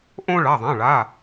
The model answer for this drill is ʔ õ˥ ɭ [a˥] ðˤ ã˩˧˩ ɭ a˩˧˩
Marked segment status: incorrect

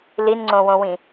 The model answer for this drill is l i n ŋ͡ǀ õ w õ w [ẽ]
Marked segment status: incorrect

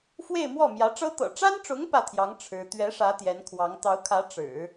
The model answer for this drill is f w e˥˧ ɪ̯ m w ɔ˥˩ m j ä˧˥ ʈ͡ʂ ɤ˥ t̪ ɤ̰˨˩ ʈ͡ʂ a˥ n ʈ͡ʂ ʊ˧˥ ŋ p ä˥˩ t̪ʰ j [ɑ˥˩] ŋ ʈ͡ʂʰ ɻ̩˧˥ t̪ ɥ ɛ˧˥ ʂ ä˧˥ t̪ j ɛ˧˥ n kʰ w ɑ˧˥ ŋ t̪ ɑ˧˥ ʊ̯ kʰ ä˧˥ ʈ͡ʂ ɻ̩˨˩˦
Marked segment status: incorrect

